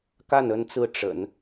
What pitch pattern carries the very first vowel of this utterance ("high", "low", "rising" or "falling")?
falling